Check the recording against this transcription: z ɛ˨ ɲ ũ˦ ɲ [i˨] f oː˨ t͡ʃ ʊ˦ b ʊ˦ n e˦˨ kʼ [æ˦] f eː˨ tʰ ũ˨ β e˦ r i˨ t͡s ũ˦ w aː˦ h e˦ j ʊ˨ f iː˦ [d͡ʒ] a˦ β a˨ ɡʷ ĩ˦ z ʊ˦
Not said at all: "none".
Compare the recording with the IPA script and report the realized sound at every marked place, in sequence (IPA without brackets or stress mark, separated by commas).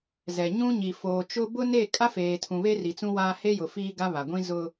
i˨, a˦, ɡ